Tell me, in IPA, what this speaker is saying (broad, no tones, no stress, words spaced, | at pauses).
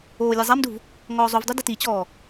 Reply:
oːlʲɛzˤamduv | ŋɔːzˤuvdˤu dɪtit͡ɕɔː